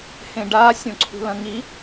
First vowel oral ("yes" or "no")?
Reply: no